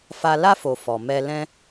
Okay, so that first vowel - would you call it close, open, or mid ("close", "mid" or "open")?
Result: open